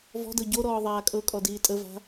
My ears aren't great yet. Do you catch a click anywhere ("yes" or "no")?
no